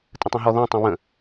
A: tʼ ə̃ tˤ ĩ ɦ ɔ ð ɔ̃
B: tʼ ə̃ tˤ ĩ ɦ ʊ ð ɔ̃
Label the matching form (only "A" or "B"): A